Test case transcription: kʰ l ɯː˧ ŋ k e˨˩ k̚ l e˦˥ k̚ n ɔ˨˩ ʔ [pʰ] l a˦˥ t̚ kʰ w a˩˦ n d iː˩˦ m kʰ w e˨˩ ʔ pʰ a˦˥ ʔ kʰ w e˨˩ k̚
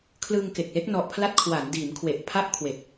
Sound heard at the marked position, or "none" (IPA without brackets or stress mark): pʰ